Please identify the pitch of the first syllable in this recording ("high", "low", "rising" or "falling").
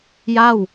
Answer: falling